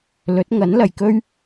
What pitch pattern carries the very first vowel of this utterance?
rising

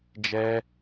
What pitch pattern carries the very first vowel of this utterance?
high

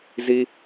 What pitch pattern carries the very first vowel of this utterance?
high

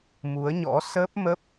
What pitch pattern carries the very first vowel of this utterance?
rising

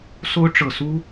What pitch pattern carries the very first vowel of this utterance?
high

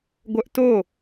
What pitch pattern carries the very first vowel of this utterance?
high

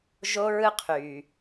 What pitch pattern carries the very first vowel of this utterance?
high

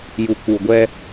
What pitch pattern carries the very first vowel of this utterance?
low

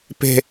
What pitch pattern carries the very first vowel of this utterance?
falling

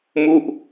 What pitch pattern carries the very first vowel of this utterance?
falling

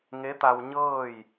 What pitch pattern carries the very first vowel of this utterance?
rising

